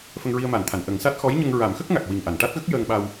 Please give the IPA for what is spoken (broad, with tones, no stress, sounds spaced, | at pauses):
f ə˧ ŋ ɹ i˧ ə̯ m a˨˩˨ n t̪ʰ a˨˩˨ n ʔ ə˨˩˦ ŋ s a˦˥ t̚ x ɔ˧˥ j ɲ ə˧ ŋ ɹ a˨˩˦ m x ə˦˥ k̚ ŋ a˨˩ k̚ w i˨˩ ŋ ʔ a˨˩˨ n ʈ a˦˥ t̚ ɣ ə˦˥ k̚ j əː˧ ŋ ɓ a˧ w